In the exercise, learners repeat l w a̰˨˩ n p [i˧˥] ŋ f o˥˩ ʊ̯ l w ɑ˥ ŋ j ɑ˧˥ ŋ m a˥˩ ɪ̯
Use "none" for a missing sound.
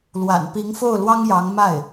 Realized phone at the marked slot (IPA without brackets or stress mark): i˧˥